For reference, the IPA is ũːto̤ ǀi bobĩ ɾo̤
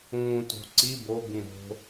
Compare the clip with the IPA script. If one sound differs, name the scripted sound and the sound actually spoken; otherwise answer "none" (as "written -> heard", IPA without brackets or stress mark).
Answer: none